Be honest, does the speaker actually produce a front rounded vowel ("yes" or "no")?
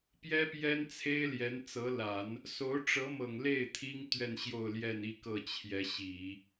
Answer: no